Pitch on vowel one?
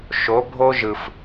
rising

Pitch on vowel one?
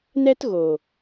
high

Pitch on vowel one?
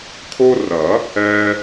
high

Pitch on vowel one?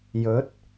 rising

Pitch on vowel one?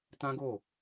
high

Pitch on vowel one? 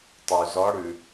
low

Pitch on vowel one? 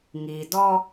low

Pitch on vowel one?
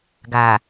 low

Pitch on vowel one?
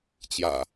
low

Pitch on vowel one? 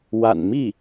low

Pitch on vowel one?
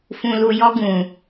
low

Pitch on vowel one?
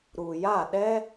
low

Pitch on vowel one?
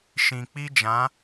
low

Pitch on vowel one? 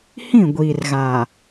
falling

